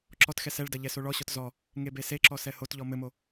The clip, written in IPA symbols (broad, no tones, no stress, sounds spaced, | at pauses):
ǁ ɔ t x ɛ s ɛ ɭ d ɐ ʎ ɛ s o ɭ ɔ ɕ ɔ t z ɔ | ŋ e b e s e ǁ ɔ s ɛ h o t ʎ ɔ m ɘ m o